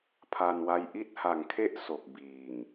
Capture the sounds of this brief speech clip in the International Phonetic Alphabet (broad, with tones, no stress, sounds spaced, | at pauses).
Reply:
pʰ a˧ n w a˦˥ j ʔ i˦˥ t̚ h a˨˩ ŋ kʰ e˥˩ ʔ s o˨˩ k̚ b iː˨˩ ŋ